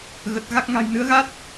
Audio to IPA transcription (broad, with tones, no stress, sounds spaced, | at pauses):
ɣ ə˨˩ t̚ ɣ a˦˥ k̚ ŋ a̤˨˩ j n ɨ˨˦ ə̯ ɣ a˦˥ t̚